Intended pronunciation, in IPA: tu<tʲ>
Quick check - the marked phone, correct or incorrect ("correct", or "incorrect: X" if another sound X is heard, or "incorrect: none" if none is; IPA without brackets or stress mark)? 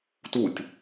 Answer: correct